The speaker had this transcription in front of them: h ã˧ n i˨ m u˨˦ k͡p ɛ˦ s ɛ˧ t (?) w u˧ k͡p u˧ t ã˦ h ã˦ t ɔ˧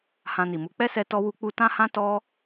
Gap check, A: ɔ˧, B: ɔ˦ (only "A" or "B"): A